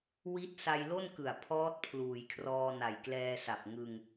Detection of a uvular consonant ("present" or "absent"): absent